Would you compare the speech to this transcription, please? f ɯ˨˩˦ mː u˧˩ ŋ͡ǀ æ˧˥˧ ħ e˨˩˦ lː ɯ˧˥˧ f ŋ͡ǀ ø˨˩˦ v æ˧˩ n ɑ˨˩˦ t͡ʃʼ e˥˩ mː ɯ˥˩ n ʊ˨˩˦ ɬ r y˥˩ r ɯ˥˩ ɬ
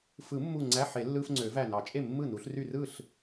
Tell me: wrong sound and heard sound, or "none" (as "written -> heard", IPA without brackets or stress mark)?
ʊ˨˩˦ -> u˨˩˦